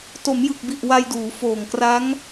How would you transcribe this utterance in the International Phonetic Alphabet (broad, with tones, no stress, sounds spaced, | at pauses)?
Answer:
t o˩˦ m j ɯ˨˩ k̚ b i˨˩ ʔ w a˧ j d uː˩˦ f oː˨˩ ŋ k r a˦˥ ŋ